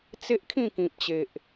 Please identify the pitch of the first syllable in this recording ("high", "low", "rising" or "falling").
high